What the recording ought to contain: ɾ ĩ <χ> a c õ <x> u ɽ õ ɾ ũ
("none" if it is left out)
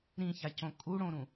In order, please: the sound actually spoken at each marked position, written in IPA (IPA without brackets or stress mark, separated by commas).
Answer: ç, kʼ